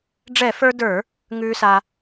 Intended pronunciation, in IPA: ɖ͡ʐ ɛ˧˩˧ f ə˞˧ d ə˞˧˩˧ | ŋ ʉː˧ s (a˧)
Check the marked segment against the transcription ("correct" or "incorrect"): correct